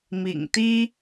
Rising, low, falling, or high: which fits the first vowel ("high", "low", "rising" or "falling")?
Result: low